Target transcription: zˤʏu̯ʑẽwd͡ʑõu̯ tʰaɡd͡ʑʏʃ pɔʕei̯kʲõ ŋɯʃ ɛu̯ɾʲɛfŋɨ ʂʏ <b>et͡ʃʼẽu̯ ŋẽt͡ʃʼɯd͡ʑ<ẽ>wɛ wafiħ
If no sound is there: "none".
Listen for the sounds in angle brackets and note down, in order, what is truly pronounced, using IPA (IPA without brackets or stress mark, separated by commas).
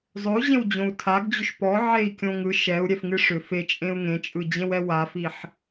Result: f, ẽ